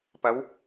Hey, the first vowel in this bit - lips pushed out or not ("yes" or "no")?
no